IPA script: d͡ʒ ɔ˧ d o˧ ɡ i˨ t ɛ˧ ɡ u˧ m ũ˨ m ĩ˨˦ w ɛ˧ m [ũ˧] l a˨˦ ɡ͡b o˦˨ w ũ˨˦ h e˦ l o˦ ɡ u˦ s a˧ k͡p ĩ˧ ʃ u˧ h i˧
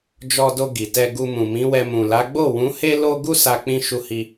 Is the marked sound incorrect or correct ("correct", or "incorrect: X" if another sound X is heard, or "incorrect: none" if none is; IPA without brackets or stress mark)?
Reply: incorrect: ũ˨